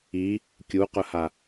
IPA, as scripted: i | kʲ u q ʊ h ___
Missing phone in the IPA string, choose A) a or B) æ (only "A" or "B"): A